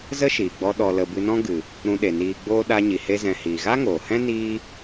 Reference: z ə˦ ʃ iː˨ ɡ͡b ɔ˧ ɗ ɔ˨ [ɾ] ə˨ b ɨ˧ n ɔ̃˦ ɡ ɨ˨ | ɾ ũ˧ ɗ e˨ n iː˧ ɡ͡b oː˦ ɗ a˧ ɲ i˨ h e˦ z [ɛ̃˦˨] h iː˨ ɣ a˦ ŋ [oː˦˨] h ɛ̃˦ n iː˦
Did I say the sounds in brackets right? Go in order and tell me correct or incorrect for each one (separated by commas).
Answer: incorrect, incorrect, incorrect